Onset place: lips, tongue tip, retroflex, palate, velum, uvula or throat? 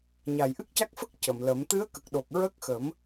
palate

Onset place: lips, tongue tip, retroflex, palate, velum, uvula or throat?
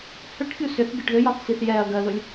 throat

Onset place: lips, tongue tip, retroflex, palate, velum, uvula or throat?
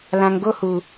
tongue tip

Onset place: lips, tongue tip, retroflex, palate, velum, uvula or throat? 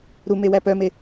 tongue tip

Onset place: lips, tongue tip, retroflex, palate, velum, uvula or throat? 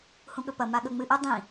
throat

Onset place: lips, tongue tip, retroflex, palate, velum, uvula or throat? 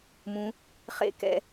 lips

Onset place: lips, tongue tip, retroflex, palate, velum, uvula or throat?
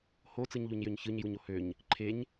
throat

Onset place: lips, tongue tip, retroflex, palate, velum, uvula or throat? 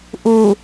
throat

